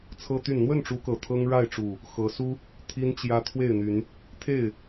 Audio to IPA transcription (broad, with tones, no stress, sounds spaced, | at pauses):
t͡sʰ ɤ˦ t̪ y˥˨ n n̪ w ə˥˨ n ʈ͡ʂ u˨˦ k ɤ˨˩ t̪ʰ ɤ˦ ŋ ɻ a˥˨ ɪ̯ ʈ͡ʂ u˨˩ | x ɤ˨˦ s u˦ | t̪ʰ i˦ n t͡ɕ j ä˦ t̪ʰ w e˥˨ ɪ̯ n̪ y˨˦ n | t̪ʰ e˥˨ ɪ̯